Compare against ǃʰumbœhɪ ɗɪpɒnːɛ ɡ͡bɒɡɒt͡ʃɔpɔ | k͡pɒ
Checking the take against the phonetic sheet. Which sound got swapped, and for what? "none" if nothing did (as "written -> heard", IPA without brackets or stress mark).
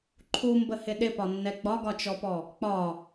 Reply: œ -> ə